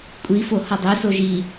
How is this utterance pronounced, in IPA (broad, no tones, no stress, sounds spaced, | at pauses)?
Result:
kʷʼ i f o h ɒ dˤ o s o ʒ i